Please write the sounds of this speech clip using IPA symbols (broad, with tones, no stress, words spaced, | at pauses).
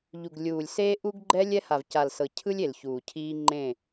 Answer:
ʎu˨ɡlʲuː˨lʲ se˦ʔu˦ɡ ɡ͡ǃɛ˦ lʲɛ˦ha˨vca˨lsɤ˨ cʰɯ˦lʲ e˨lçuː˨cʰiː˦ ŋ͡ǃẽ˦˨